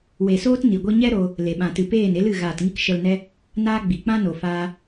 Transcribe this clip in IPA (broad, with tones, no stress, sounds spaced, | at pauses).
w e˨ s oː˦ t n i˨ ɡʷ i˦ ɲ ɛ˦ ɾ oː˧ | l e˨ ɓ ã˨ t ɨ˨ p eː˦˨ n e˦ l ɨ˦˨ ɣ aː˨ t ŋ i˧ k ʃ ə˧ l n ɛ˦ | n aː˦ ɡ͡b i˨ k͡p ã˦ n o˨ f aː˧